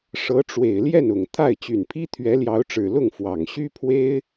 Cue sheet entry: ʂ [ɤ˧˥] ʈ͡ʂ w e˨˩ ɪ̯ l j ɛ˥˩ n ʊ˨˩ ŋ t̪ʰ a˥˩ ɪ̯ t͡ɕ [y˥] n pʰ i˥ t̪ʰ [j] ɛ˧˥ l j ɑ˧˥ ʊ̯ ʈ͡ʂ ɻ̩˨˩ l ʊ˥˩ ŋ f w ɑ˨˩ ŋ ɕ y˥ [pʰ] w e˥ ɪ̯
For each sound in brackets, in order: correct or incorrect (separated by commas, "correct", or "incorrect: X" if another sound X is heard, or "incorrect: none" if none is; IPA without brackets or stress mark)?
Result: correct, incorrect: y˨˩, incorrect: ɥ, correct